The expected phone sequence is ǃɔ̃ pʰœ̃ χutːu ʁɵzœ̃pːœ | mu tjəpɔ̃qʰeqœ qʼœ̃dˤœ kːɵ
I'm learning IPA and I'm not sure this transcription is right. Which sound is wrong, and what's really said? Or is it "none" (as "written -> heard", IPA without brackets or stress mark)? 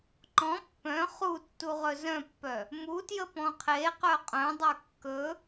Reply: pʰ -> pː